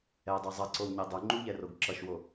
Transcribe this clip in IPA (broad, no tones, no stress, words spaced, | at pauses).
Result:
ɛdˤɛ zˤʌǀowɲe dˤuŋ͡ǃuʎɛroɡ ǁʌʃwo